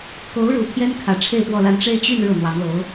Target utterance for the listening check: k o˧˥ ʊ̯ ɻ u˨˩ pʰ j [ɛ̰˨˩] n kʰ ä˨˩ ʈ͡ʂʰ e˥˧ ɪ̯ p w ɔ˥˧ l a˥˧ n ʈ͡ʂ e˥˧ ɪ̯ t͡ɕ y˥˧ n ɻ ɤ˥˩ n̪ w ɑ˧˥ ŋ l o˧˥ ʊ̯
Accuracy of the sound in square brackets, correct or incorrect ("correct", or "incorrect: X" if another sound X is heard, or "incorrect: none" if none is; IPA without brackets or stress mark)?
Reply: incorrect: ɛ˥